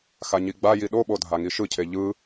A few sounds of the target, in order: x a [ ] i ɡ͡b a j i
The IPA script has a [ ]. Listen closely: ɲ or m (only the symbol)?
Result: ɲ